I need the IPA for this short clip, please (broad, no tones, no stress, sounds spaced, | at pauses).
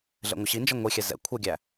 ɮ ɛ̰ ŋʷ ɘ ɕ i n d͡ʒ ʌ ŋʷ i xʲ ɛ z ɛ̰ kʷʰ ɛ ɡʲ æ